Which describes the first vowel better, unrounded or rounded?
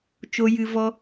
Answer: rounded